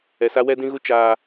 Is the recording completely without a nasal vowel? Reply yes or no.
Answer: no